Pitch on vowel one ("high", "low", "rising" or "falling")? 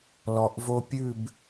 low